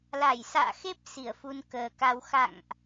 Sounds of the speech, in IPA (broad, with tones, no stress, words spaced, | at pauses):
la˧˩jsa̰ː˧˨xe˦˥p̚ si˧˩ə̯fu˧nkəː˨˩ka˧w xa̰˧˨ŋʔ